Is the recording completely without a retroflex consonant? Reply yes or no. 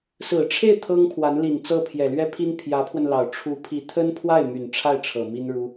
no